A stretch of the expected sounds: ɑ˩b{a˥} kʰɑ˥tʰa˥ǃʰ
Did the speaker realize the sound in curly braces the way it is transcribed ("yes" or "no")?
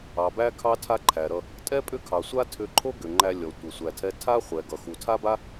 no